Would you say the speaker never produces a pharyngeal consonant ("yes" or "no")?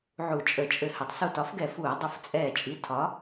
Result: no